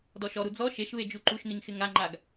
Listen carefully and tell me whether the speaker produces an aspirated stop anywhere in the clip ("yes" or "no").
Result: no